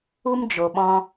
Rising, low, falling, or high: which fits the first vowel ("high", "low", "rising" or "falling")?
high